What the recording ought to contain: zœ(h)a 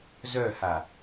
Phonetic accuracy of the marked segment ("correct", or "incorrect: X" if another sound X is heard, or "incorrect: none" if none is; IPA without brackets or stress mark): correct